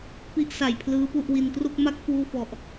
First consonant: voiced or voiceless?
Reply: voiceless